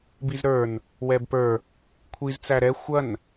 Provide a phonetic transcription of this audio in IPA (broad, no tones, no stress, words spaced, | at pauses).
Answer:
bizɾə˞n | wɛbpə˞ | kʷʰiz t͡sæɾɛ xʷɐn